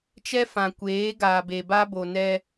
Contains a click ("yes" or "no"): no